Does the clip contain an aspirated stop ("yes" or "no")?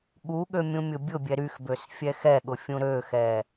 no